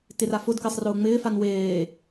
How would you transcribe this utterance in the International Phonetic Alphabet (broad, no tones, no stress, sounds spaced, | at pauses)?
t ɪ r a f ʊ d k ɪː sˤ r ʊː ŋ͡m ɪː f a n w eː